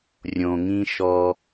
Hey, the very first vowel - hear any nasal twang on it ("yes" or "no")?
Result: yes